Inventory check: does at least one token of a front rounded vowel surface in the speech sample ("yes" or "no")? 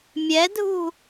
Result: no